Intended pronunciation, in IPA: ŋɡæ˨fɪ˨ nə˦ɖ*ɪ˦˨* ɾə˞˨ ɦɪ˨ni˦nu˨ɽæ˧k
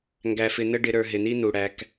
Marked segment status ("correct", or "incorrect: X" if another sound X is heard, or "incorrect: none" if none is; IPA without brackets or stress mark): incorrect: ɪ˧